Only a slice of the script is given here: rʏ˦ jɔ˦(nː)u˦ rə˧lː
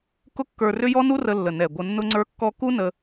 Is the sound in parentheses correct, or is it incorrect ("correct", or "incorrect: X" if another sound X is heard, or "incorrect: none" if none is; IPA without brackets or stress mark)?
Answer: incorrect: n